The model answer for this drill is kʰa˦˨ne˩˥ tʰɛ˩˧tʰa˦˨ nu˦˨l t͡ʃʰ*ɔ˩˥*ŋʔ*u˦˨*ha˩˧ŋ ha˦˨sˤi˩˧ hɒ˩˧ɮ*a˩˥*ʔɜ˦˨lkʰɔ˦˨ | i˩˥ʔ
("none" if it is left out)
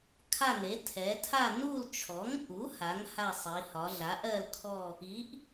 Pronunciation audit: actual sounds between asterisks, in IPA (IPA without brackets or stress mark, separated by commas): ɔ˩˥, u˩˥, a˩˥